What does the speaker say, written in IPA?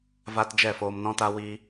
v a˧ t d͡ʒ ɛ˦˨ f oː˧ m n ɔ̃˦ t a˦ w i˦

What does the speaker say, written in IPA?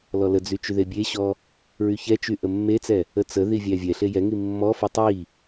l ɔ l ə d͡z y t͡ʃ y ð e bʲ e ɕ ɔ | ɹ y ç ɛ t͡ʃ y ʔ ə mː e t͡s ɛ | ə t͡s ə ð i vʲ æ vʲ ɛ ɬ e j ɛ ŋ i mː ɔ f i tˤ i

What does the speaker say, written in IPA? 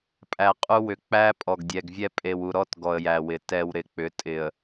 pʼ æ˨ qʼ u˦ w ʏ˨ k͡p æ˦ pʼ ɔ˨ ɡ dʲ ɛ˨ ɡ vʲ ɛ˦ pʼ e˨ w u˨ ɾ ɔ˦ t ɡ ɔ˨ ə̯ j æ˨ w ɪ˨ t ɛ˨ w ɾ ɪ˨ k͡p ʏ˨˦ tʼ ɪ˨ ə̯

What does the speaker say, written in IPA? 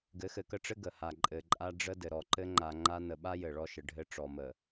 ɡ ɘ˨˦ x ɘ˨ k ə˦ ʈ͡ʂ ɘ˦ ɡ ə˨ h a˨ ǃʼ ɘ˨ ǃʼ a˦ ɖ͡ʐ ə˦ d ɘ˨ ɾ ɔ˨ ǃ ɘ˦ ŋ͡ǃ a˨ ŋ͡ǃ a˦ n ə˨ ɓ a˦ j ɘ˨ ɭ ɔ˦ ʃ ə˨ ɖʱ ɘ˦ ʈ͡ʂ ɔ˨ m ə˨

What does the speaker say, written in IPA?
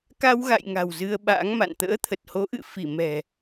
k a˧ w ɣ a̰˧˨ j ŋ a̤˨˩ w z ɨ˧ ə̯ ɓ a̰ː˧˥ ŋ m a̰˧˨ n t̪ ə̰ː˧˥ t̪ʰ ə˨˩ t̚ h o˨˦ ʔ ɨ̰˧˨ f i˧˩ m ɛ̤˨˩

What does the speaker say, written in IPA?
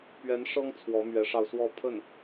p ɥ ɛ˧˥ n ʂ ɤ˥ ŋ t͡sʰ w ɔ˧˥ m ɥ ɛ˧˥ ʂ ɑ˧ ʊ̯ s w ɔ˥˧ pʰ ə˥˩ n

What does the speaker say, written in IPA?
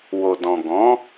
w o˨ d ɔ̃˨ ɡ ɔ̃˨˦

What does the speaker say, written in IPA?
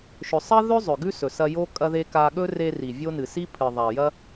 ʃ ɵ˨ sˤ ɐ˦ ð ɵ˦ zˤ ɵ˨ ɡ ʉ˦ s ɵ˨ s ɐ˧ j o˦ kʼ ɐ˧ ð e˧ k a˧ ɠ ɵ˦ r e˧ r i˨ vʲ o˦ n ɨ˨ s i˦ pʰ ɨ˨ ðˤ a˨ j ɐ˦

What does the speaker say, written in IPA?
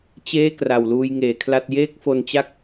t͡ɕ eː˥˩ k r a˨˩ w l uː˧ j ŋ eː˩˦ kʰ l a˥˩ t̚ j eː˥˩ k̚ f o˧ n t͡ɕ a˥˩ k̚

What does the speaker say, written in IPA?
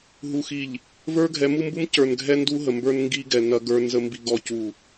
ɦ u˨ x i˨ ʎ | v ə˞˦ ɡʱ ɛ˨˦ m u˦ m b u˦ m c ə˞˨ n ɡʱ ɛ˦ n d u˦ ɦ ə˨ m b ə˞˦ n ŋ ɡ i˦ ɡ ɛ˨ n ɐ˦ ɡ ə˞˦ n z ə˦ m b i˦ ɡ ɔ˦ c u˦˨

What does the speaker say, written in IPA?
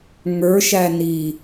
ŋ ə˞ ʃ æ n i

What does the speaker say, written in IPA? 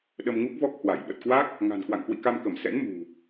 ɗ ə˧ m ŋ u˦˥ k̚ v ɔ˦˥ k̚ h w a˧˩ j ɓ ə˨˩ t̚ k w a˦˥ k̚ | ŋ a̤˨˩ n k w a̰˧˨ ŋ k w ḭ˧˨ k a˧ m k ə˧˩ m s ɛ̰˧˥ n m ṳ˨˩

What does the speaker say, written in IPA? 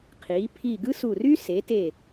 qʰ iː˩˧ pʰ i˧˩ ɡ ɯ˥ s u˧˩ r y˥ s e˩˧ t e˧˩

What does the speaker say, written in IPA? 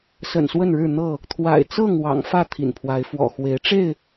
s ə̰˨˩ n s w ə˥˨ n ɻ ɻ̩˥˨ n̪ ɤ˥˨ | t̪ʰ w a̰˨˩ ɪ̯ t͡s ɤ˥˨ ŋ w ɑ̰˨˩ ŋ f ä˥˨ t̪ʰ ḭ˨˩ n pʰ w a˨˦ ɪ̯ f w ɔ̰˨˩ x w e˨˦ ɪ̯ ʈ͡ʂ e˥˨ ɪ̯

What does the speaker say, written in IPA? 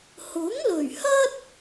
h ʊ˨˥ ŋ l ɵ˨˩ ɥ h ɐ˥ t̚

